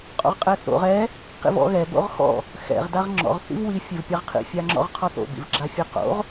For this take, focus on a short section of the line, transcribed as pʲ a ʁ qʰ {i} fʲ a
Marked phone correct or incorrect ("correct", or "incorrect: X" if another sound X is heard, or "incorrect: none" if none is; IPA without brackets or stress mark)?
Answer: incorrect: ḭ